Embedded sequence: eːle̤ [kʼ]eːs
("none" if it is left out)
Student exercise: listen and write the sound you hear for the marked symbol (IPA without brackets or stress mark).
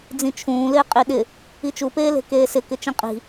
k